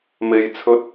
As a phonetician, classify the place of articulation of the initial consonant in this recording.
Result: labial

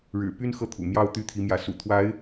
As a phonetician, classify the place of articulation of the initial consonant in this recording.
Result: retroflex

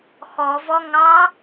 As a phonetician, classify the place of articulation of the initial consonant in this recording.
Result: velar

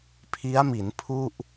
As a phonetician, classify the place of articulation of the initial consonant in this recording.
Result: labial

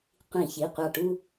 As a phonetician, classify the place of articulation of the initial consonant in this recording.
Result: uvular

